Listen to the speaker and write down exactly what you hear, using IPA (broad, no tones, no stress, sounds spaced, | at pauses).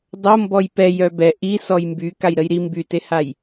dˤ o m b ɔ j p ɛ j œ b ɛ ʔ i s ɔ j m b y k a j ɾ ə j ɾ i m b y t e h a j